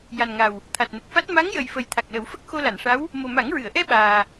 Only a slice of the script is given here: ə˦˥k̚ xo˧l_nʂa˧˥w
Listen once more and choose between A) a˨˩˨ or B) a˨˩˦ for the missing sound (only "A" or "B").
A